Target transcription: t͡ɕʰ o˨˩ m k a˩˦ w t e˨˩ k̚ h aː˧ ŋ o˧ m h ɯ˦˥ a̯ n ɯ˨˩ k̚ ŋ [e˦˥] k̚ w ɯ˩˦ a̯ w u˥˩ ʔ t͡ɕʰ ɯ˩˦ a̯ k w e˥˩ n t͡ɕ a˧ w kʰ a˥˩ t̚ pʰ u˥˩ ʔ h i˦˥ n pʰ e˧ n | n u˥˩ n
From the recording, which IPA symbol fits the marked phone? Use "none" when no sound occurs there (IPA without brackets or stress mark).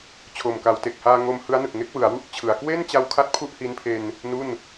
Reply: e˦˥